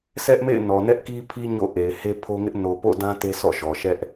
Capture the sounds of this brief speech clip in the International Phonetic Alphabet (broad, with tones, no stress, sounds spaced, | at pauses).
sʰ ɛ˦ ʔ m ḛ˦˨ ɪ̯ n ɔ˨ n ɛ˦ ʔ k i˦ pʰ i˦ ɲ o̰˦˨ ʔ e˨ ɪ̯ h e˦ pʰ o˦ ŋ ɪ˦ ʔ n o˨ p o̰˦˨ d ã˦ t e˦ s ɔ̰˦˨ ʃ ɔ˨ ʃ ɛ˦ ʔ